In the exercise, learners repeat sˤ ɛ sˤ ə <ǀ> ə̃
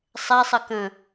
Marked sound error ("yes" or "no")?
yes